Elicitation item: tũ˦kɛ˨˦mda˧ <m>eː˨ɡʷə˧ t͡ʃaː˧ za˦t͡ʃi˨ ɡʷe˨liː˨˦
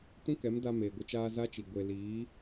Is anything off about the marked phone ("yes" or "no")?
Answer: no